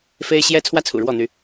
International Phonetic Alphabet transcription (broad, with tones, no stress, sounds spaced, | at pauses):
f e˦ ɪ̯ ɕ j ɛ˦ t͡sʰ w ä˦ t͡sʰ ṵ˨˩ ɻ w ɔ˥˨ n̪ y˨˦